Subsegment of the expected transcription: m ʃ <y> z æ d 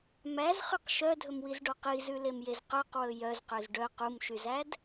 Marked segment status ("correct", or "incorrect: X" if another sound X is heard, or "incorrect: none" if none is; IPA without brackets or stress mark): correct